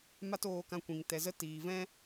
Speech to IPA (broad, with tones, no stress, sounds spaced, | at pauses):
m a˦ t oː˧ k ã˧ kʷ ĩ˨ ŋ t ɛ˨ z ə˧ t iː˨ v ɛ̃˧